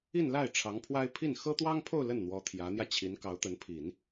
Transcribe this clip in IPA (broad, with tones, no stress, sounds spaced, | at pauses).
i˥˧ n l a˥˩ ɪ̯ ʈ͡ʂʰ ɑ˧˥ ŋ pʰ w a˥ ɪ̯ pʰ i˥˩ n x ɤ˥ t̪ w ɑ˥ ŋ pʰ o˥˧ ʊ̯ l ə˥˩ n n̪ w ɔ˧˥ t̪ʰ j ä˧˥ n̪ j ä˧ t͡ɕʰ i˧˥ n k ɑ˧˥ ʊ̯ t̪ ə˧˥ n pʰ i˨˩˦ n